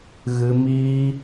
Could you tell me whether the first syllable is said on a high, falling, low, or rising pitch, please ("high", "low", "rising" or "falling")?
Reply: high